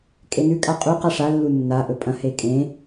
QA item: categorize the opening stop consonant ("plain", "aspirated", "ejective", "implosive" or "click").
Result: ejective